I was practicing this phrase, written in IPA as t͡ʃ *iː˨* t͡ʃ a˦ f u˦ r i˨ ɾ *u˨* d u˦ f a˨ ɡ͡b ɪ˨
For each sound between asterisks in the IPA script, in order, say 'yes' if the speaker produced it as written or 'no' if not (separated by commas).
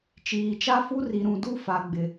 yes, no